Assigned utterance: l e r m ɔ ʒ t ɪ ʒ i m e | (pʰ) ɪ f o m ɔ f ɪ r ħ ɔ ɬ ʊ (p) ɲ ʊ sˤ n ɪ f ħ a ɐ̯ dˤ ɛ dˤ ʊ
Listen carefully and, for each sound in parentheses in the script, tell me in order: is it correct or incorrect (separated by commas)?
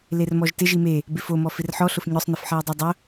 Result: incorrect, incorrect